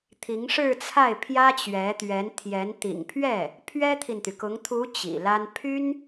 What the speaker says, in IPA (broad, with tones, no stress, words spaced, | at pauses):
t̪ʰi˧˥ŋʂɻ̩˥˧t͡sʰa˥˩ɪ̯ pʰjä˥t͡ɕɥɛ˧˥t̪ɥɛ˧˥nt̪ʰjɛ˧˥n t̪ḭ˨˩ŋpʰɥɛ˥˩ | pʰɥɛ˥t̪ʰi˨nt̪y˩kʊ˧˥ŋ t̪ʰu˧˥ t͡ɕḭ˨˩la˥n pʰy˥n